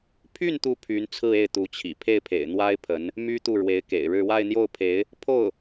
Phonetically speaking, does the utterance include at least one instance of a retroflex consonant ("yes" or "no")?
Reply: yes